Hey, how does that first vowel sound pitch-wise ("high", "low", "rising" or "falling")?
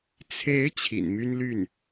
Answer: rising